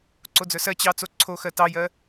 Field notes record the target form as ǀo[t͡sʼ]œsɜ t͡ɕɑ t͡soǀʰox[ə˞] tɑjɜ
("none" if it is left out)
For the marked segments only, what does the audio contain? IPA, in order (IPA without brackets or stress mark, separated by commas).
d͡z, ɜ